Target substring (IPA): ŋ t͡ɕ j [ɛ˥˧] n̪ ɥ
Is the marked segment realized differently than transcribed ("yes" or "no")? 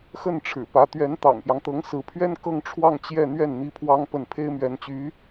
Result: no